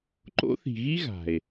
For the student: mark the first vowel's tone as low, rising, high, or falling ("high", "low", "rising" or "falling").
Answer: high